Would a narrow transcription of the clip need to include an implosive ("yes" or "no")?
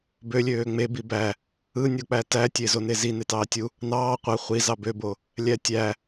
no